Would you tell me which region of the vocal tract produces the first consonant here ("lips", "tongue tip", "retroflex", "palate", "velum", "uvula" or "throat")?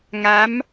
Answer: velum